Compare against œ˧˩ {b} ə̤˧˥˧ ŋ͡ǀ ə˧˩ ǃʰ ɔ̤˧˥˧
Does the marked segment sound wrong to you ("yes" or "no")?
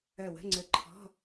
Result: yes